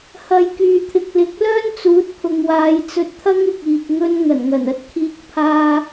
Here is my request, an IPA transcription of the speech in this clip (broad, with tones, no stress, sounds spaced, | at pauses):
h ɐ˨˧ j k yː˨ t̪ʰ ɪ˨ k̚ l ɪ˨˥ k̚ l œː˥ n t͡s uː˨˥ t̚ pʰ ʊ˨ ŋ w aː˨˧ j t͡s ɵ˧ t̚ t̪ʰ ɐ˥ ŋ ɪ˧ k̚ iː˨ k̚ ŋ ɵ˧ n ŋ ɐ˨˩ n ŋ ɐ˨˩ n ɐ˧ t̚ kʰ iː˧ k̚ pʰ aː˧